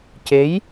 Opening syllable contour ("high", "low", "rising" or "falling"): rising